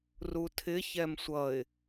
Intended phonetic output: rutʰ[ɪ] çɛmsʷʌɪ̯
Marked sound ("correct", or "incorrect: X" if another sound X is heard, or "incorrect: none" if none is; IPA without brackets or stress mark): correct